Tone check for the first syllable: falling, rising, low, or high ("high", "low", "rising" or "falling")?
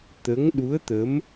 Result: rising